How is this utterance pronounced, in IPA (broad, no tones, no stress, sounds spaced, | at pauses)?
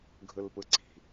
ɡʱ ɯ l p ɯ ǀ i̤